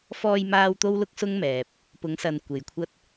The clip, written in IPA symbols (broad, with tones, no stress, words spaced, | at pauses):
fɔː˧jmaː˧w t̪o˥wlʊ˥k̚sʊ˥ŋmɛː˨p̚ | pʊ˨˧ŋsɐ˨n kʷe˨jkʷʰɐ˥t̚